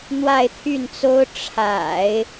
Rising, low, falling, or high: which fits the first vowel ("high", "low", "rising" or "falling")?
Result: falling